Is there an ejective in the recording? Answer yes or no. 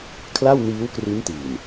no